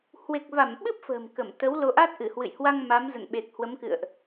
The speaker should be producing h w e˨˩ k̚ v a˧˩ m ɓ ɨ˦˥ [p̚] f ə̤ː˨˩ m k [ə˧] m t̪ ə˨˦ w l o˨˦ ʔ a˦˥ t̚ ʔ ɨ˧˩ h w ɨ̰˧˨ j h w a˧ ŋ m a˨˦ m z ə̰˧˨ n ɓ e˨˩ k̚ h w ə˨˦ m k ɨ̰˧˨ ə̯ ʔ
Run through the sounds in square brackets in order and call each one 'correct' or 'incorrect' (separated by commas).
correct, incorrect